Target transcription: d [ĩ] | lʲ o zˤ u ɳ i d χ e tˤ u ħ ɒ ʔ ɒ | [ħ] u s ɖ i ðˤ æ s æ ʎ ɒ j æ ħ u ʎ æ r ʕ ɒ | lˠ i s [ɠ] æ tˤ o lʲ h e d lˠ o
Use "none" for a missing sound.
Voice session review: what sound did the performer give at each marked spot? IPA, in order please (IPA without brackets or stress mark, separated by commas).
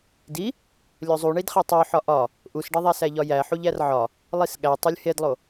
i, ʔ, ɠ